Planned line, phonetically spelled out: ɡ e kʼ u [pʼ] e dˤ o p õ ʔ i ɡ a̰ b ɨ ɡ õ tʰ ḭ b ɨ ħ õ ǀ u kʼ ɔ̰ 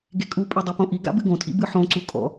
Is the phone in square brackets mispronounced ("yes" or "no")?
no